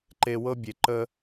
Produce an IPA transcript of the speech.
ǃe˧wɤ˦bʲe˨ ǃə˧

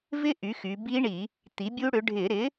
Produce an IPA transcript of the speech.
vɪ˦˥ ʔy˩˥xy˩˧bi˦˥ɳi˧˩˧ | t̪i˩˥bʲu˦˥ɽʏ˩˥ ɖʱɪ˧˩˧ɾɪ˩˥

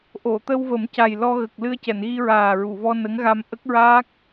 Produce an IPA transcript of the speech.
ʔo˨˩˨t̪ə˧wvə˨˩˦mca˨˩j lɔ˧ɣə˨˩k̚ lɨ˧ə̯cɛ˨˩˨nɣi˧ɹaː˨˩ ɹu˨˩˨vɔ˧nə˧˥ŋɣa˧m ʔə˦˥k̚ɹaː˦˥k̚

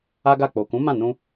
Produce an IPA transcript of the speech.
a˦ɡa˦˨ k͡po˨kũ˨˦ mã˦˨nũ˧

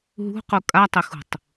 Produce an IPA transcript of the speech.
ɦṳqu kʼatˤɪxṳtˤ

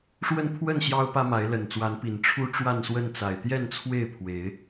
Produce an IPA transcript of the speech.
ʂwə˥˨npʰwə˥˨n ɕjɑ˦ʊ̯pä˦ma˨˦ɪ̯ lə˨˩nt͡swa˨˦npi˨˩n ʈ͡ʂʰu˦ʈ͡ʂwa˥˨nswə˥˨n t͡sa˨˩ɪ̯t̪jɛ˥˨nt͡sʰwe˥˨ɪ̯ pʰwe˨˦ɪ̯

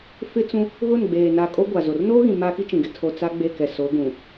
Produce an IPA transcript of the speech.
fɪ˦ t͡sũ˦ | ɣʊ˦˨nɡ͡beː˨ na˨ kʼo˦ɡʷa˨zo˨r noː˦ɣĩ˨ maː˦ki˦t͡ʃĩ˨ɡɪ˦ tʰo˨ t͡sa˦ɡ͡be˦˨kɛ˨so˨˦ ɡũ˨

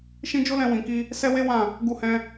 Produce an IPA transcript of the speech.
ʃĩ˦ d͡ʒo˦lɛ̃˧ wĩ˨ki˧ | sɛ˦we˦ wã˦˨ | ɡu˧hɛ̃˧

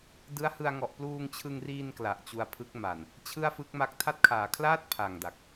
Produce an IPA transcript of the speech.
dɯ˦˥a̯hɯ˧a̯ŋɔ˨˩ʔ pluː˧ŋt͡ɕʰɯ˧ŋriː˧n kla˨˩ʔt͡ɕu˧a̯ pʰɯ˦˥k̚ma˨˩n | t͡ɕʰɯ˥˩a̯fɯ˦˥k̚ma˦˥k̚ tʰa˦˥t̚kʰaː˩˦kʰlaː˥˩t̚ pʰa˨˩ŋ da˨˩k̚

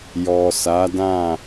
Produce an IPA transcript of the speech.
jɔ˨sa˨˦dã˦˨

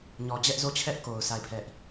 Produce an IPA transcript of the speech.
ɲɔ˨d͡ʑɛ˦ʔzo˦˨t͡ɕʰɛ˦ʔ ko˨ʊ̯ sʰa˦˨ɪ̯pʰɛ˦ʔ

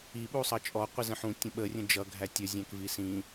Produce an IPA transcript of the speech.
iɓusˤʌ t͡ʃʼɔqʷizə̃ ħũtʲə̃ ɓərʲə̃ d͡ʒʌɡʱæ tʲəzʲæ̃kvi sĩ

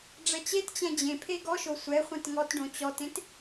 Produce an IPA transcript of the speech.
ɖ͡ʐɛt͡ɕett͡ɕɛ̃ d͡ʑẽpʰe ɡɔʃo sʷɛ χʷẽtŋɔtɖõ t͡ɕɔtẽt

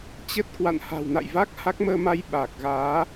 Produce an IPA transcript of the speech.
t͡ɕə˦˥t̚kwa̰˧˨n ha̤˨˩wna̰˧˨jva˦˥k̚ ha˦˥k̚məː˧ma˧j ɓaː˨˩k̚ɣaː˨˦

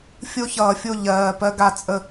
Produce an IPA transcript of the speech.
fʲo˧çʌː˩fʲo˧˩ ʎɜː˩ pɜ˧ɡa˧˩ t͡sʼə˧˩

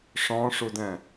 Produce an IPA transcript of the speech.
ʂɔ̃ʂudɛ̃

